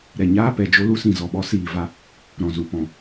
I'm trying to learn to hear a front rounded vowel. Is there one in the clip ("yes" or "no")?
no